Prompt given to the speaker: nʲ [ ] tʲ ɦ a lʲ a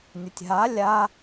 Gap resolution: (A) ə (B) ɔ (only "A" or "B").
A